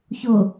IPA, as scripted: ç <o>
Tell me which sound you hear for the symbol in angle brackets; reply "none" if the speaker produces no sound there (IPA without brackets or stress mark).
o